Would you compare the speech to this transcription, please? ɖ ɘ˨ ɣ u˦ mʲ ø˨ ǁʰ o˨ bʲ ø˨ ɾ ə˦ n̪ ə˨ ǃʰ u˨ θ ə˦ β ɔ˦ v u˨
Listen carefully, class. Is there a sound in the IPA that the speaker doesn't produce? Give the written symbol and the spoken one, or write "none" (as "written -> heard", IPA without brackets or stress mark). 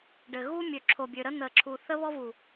ǃʰ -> ǁʰ